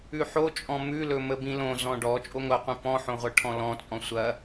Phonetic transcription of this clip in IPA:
ʉ ħ o t͡ʃʼ ɔ̃ m ʉ l ɵ m ə b ĩ l õ z ɔ̃ ɖ ɔ t͡ʃʼ o ŋʷ ɐ qʷ ĩ p ɔ̃ ħ õ ʁʷ ɐ ʈʰ ɔ̃ l ɔ̃ t͡sʼ ɔ̃ sʷ ɐ

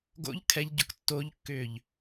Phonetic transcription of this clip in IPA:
ɡ o̰ ʎ kʰ ɛ ʎ ɟ ʊ k tː o ʎ kː ʏː ʎ

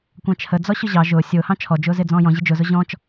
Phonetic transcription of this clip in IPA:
kʷ ɑ̃ t͡ʃʰ ə d͡z ɔ ɕ ʊ ʑ ɑ ʒ ʊː sʲ ʊː h ɑ̃ t͡ʃʰ ɔ d͡ʒ ʊː z ɪ d͡z ɔ̃ː j ɔ̃ ʑ ɪ d͡ʒ ʊ z ʊ ʑ ɔ̃ t͡ʃ

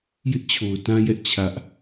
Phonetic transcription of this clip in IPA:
j ɪ˦ ʔ t͡ɕʰ o˨ ʊ̯ t ã˦ j ɛ˦ ʔ t͡ɕʰ ä˦ ʔ

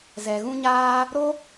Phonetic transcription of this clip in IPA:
z ɛ˨ ɣ ũ˧ ɲ aː˧ | ɾ o˦

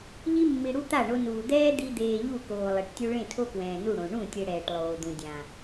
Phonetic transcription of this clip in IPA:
ʎ i˧ mː i˨ ɽ u˧ t̪ a˦˨ ɳ o˧ n uː˨ d̪ ɛː˦ d̪ i˧ d̪ eː˨ ʎ u˦˨ k oː˨ lˠ e˨ ʈ tʲ u˧ ɭ ẽ˦˨ tʰ o˦ k w ɛ̃ː˨ n u˦˨ ɽ õ˨ ɳ ũ˦˨ tʲ e˧ ɽ ɛː˨ ʈ lˠ oː˨ d̪ ũ˨ dʲ ã˨

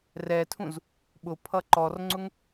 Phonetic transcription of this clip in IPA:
r ɛ tʰ ũ z | ɓ ʊ pʰ ʌ ǃ ɔ r ŋ͡ǀ ʊ ŋ

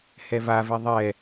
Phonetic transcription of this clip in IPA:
h ɛ v a v ɛ ðˤ ɛ

